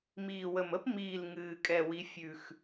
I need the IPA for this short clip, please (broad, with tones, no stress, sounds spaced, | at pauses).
m iː˧˩ w ə˧˩ m ə˥ p m iː˧˩ l ŋ ɨː˧˩ kʼ ɛ˥˩ w i˧˥ fʲ ʉ˧˩ x